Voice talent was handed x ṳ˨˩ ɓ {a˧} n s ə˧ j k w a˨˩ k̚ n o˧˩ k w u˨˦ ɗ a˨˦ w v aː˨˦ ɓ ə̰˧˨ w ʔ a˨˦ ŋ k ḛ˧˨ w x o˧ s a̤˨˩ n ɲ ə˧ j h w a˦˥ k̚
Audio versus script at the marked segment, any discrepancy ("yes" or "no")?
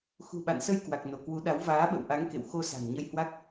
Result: yes